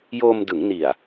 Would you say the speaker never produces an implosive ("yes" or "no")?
yes